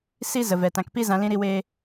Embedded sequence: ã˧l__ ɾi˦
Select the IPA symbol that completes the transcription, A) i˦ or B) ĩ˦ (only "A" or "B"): B